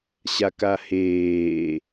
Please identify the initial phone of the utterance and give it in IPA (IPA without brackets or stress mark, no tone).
ɕ